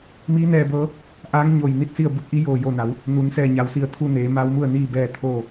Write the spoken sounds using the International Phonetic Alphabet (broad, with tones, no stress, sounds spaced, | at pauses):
m iː˧˥ n ɛː˧ b ɤː˧˥ | ʔ aː˧˥ ŋ ɲ o˧˩ j n i˥˨ t̚ s i˥˨ ə̯ b u˧˥ k̚ ʔ i˧˥ j oː˧˩ j o˧˩ n a˩˧ w | n u˩˧ n s ɛː˧˩ ɲ a˩ w s i˧˩ ə̯ t̪ʰ u˧ n eː˩˧ m a˧˥ w m u˥˨ ə̯ n iː˥˨ b ɛː˥˨ t̪ʰ oː˥˨